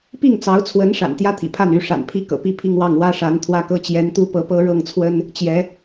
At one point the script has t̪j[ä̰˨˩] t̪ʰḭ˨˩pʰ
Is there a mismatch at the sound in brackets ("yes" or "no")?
yes